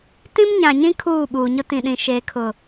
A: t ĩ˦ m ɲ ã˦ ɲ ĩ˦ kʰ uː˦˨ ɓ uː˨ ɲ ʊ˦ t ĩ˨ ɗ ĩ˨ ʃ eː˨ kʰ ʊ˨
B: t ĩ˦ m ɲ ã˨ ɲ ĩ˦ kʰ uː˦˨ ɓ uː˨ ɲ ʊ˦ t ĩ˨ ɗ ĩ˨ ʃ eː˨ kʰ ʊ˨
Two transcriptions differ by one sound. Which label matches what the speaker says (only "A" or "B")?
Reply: B